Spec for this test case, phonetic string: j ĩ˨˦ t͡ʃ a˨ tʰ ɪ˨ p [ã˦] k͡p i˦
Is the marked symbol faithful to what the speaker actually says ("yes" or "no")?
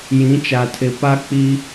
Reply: no